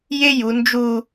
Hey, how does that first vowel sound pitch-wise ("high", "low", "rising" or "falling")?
high